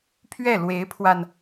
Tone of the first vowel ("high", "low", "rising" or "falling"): falling